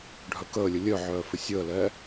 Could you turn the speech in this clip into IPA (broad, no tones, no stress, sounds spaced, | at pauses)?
ɖʱ œ k əː lʲ ə lʲ œ ʕ œː f ɪ sʲ əː l ɛː